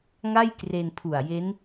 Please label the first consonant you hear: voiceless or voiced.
voiced